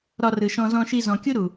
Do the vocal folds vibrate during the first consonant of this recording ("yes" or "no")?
yes